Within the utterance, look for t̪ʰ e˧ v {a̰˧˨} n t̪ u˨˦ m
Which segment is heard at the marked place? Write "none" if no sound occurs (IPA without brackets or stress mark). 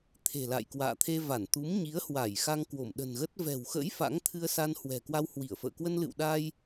a˧˩